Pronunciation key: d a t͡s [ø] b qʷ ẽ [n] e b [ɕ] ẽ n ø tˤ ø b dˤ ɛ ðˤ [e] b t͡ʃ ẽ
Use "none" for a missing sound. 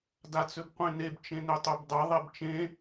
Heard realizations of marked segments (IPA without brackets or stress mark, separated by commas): ø, n, t͡ʃ, e